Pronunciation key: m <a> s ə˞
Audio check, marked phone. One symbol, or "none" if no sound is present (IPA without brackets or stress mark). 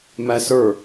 æ